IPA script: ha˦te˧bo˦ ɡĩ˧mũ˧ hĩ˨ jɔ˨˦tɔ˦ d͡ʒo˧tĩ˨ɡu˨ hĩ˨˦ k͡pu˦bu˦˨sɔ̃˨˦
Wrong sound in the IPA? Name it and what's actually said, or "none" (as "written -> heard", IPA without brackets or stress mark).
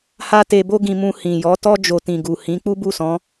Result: none